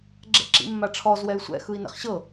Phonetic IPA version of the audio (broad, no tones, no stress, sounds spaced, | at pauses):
ɡ͡ǁ ɛ̰ ǁ ḭ mː a ʈ͡ʂʰ ɔ z w ɛ y̯ sʷ ɛ̰ x ɯ i̯ n ɛ̰ χ ɕ ɤ